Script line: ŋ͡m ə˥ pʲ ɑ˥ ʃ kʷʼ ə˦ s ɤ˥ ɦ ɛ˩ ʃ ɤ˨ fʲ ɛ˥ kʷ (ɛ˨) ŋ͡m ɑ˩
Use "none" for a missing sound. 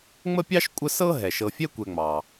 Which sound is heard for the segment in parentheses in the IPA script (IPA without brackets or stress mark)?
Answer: ɛ˨